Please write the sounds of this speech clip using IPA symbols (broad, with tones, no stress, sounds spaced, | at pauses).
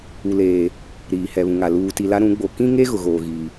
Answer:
u˨ l eː˨ | ɾ iː˨ h ɛ˨ β ũ˨ ŋ a˨ l uː˨ t i˨ l a˦ ɾ ũ˨˦ ɡ͡b o˨ k ĩ˦ ŋ e˦ ɣ ʊ˨ ɣ oː˨ ɣ iː˨